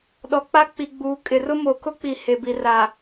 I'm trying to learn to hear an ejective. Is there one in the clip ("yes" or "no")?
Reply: yes